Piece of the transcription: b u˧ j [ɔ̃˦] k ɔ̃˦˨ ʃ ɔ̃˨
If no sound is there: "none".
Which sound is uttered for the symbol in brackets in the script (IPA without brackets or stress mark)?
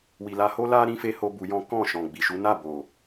ɔ̃˦